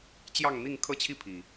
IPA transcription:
t͡ɕ j ɑ˥˨ ŋ n̪ i˥˨ ŋ kʰ ɤ˦ t͡ɕʰ i˥˨ pʰ i˨˩

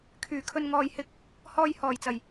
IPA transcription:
kʰ yː˨˩ kʰ ɵ˨ n ŋ ɔː˨ j h ɪ˧ k̚ | h ɔː˨ j h ɔː˨˩ j t͡s ɐ˨˩ j

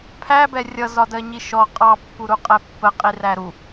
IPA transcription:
pʰ æ b ɛ rʲ ʌ z ɒ d ɜ ɲ i ʃ ɔ qʼ ɑ pː u ɾ u qʼ ɛ pː ə qʼ i r æ ɾ u

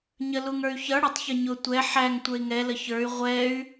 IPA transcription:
ɲ ə l u ŋ ə˞ y̯ ç ʌ ɽ ʊ tˤ ç ə ɲ ʊ tʷ ɛ ħ æ ŋ tʷ ə˞ i̯ ŋ ɛ l ə ç ə˞ y̯ ʁʷ ɛ y̯

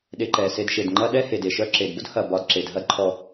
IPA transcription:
ɗ e˨ ǃ ɛ˩ s e˨ d ʃ e˩ d ŋ͡ǃ ɐ˦ ɗ ɛ˦ h e˩ d e˩ ʃ œ˦ ǁ e˩ d b ʊ˥ d h ɐ˩ b ɒ˨ d ǁ e˩ d ɦ ɐ˦ d ǃʰ ɔ˩

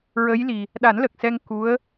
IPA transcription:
ɹ ə˧˥ j l i˨˩ | ɗ a˨˩˦ n l ə˨˩ k̚ s ɛ˧ ŋ k u˧˥ ə̯

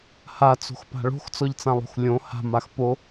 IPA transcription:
h a t͡s o̤ x p a̤ ɭ o̤ x t͡s ɔ ʎ t͡s ã lˠ o̤ x lʲ õ h a̤ m a x p o

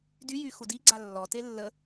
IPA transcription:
d y j y x u d i ɡ͡ǀ a lː ɔ t e lː ə

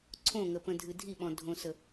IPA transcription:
ǀʰ õ ŋ ə p ə̃ dʱ ɨ dʱ i ɓ ɔ̃ dʱ õ s ə

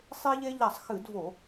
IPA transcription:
sˤ e˦ ʎ e˦ ʎ a˧˩˧ sˤ x ɨ˧˩˧ d v o˧˩˧

